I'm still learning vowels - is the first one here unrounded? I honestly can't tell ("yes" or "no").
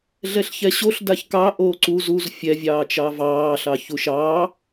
yes